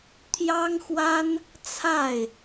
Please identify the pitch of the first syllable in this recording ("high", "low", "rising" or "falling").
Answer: high